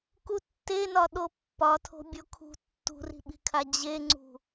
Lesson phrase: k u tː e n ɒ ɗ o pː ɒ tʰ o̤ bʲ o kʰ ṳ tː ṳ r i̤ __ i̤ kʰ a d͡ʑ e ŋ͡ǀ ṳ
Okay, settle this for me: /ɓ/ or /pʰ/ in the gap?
ɓ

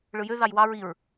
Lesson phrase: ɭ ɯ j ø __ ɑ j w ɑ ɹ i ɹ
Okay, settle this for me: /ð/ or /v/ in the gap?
ð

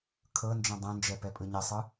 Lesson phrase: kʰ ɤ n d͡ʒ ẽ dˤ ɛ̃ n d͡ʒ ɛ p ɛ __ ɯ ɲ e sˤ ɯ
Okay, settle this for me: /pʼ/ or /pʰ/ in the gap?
pʼ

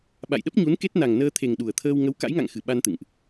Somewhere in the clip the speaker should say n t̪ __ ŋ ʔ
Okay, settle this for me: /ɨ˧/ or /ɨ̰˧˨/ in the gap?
ɨ̰˧˨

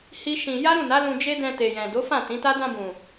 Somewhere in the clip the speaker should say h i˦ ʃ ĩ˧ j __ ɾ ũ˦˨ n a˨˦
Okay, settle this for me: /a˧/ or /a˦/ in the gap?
a˦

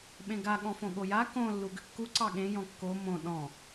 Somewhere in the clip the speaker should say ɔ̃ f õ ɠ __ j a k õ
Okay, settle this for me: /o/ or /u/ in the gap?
o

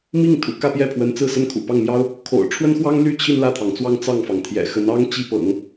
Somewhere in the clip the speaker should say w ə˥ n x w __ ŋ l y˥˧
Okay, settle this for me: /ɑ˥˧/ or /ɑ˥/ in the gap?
ɑ˥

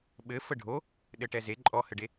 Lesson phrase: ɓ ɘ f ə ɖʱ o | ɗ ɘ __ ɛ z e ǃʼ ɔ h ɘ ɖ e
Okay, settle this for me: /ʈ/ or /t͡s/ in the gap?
ʈ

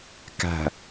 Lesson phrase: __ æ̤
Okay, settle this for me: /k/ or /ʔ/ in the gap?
k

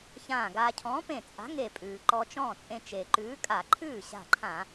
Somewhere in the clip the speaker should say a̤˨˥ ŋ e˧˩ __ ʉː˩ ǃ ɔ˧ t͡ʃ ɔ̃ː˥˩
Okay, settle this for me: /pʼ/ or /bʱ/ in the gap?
pʼ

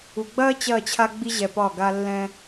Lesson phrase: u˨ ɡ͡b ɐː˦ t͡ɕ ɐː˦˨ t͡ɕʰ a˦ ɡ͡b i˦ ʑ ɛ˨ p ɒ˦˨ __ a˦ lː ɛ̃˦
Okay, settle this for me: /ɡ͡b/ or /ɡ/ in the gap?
ɡ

